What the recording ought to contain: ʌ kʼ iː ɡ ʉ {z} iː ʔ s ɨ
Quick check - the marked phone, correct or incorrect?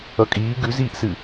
correct